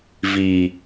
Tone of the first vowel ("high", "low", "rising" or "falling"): low